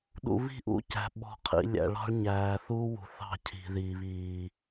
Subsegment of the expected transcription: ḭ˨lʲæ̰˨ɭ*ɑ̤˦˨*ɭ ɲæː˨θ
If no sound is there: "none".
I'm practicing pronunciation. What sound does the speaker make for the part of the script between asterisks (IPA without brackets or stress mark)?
ɑ̤˦